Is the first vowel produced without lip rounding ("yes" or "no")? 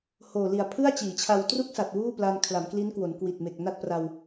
no